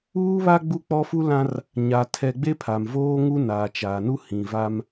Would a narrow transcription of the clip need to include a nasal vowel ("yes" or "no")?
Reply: yes